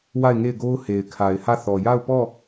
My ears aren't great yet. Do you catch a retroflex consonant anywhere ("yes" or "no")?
no